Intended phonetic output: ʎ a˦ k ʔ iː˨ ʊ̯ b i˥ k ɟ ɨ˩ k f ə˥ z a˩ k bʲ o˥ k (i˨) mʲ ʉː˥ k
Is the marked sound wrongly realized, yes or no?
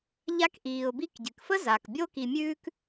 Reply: no